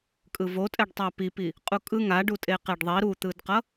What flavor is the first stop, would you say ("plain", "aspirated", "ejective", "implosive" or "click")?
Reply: ejective